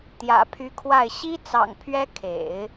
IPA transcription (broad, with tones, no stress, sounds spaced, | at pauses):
t̪ j ä̰˨˩ pʰ y˧˥ kʰ w a˥˩ ɪ̯ ɕ i˥ t͡s ɑ̰˨˩ ŋ pʰ ɥ ɛ˥ kʰ ḛ˨˩˦ ɪ̯